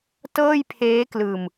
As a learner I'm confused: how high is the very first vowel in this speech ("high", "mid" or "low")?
mid